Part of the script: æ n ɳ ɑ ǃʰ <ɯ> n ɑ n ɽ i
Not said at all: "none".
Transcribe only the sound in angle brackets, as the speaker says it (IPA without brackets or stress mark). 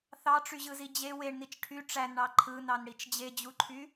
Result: ɯ